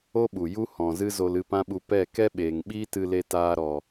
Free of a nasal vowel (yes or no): no